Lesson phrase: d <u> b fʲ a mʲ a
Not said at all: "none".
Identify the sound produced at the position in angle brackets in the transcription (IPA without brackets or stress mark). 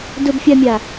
ʊ